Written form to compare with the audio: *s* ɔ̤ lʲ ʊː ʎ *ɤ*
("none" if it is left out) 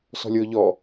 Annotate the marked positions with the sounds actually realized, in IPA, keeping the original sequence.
s, ɔ

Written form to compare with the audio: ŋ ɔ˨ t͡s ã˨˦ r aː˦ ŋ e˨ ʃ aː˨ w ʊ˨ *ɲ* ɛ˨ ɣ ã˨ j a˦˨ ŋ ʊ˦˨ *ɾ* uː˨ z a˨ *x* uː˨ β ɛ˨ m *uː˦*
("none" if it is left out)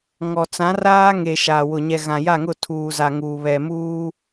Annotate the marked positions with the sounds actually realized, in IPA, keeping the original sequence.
ɲ, tʰ, ŋ, uː˦

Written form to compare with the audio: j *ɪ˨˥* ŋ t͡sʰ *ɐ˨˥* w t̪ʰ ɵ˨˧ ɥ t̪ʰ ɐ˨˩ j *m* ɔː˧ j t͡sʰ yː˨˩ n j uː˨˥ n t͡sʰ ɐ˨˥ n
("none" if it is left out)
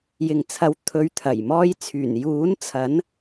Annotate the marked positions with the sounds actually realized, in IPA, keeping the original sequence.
ɪ˨, ɐ˨˥, m

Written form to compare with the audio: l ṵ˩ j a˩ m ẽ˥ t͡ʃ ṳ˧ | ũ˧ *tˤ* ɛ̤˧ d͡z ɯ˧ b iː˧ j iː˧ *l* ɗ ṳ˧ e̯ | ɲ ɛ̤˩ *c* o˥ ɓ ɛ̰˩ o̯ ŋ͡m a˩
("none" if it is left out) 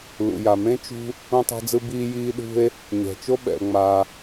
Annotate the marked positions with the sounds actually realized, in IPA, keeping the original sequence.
tˤ, none, t͡ʃ

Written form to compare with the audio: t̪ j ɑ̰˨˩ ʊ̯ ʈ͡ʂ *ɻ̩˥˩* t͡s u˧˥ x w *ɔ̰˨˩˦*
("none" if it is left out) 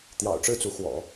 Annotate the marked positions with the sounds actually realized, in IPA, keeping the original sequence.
ɻ̩˥˩, ɔ̰˨˩˦

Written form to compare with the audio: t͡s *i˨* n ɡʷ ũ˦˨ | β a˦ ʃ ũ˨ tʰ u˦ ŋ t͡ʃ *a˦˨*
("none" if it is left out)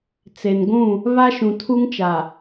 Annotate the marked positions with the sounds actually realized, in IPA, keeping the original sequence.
e˨, a˨

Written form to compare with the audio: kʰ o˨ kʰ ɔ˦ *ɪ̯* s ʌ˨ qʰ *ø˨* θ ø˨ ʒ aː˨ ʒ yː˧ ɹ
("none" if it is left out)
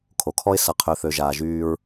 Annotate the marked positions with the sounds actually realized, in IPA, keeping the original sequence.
ɪ̯, ø˨

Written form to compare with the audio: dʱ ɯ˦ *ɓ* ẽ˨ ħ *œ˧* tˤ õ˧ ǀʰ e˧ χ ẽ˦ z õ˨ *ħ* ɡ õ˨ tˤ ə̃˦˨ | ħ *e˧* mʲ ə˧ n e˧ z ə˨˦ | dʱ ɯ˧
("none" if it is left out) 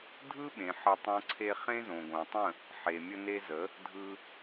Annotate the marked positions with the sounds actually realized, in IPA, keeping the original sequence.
ɓ, ə˧, none, e˨

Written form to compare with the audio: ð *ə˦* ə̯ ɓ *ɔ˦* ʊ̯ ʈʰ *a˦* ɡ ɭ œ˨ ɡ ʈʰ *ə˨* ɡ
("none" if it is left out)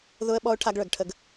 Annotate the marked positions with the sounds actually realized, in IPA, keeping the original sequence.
ʊ˦, ɔ˦, a˦, ə˦

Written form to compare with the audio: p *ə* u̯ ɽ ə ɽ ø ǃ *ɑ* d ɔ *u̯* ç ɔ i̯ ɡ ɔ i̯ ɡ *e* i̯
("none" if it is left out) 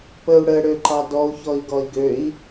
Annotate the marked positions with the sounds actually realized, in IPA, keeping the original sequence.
ə, ɑ, u̯, ø

